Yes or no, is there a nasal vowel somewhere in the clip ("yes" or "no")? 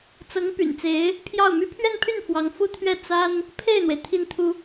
no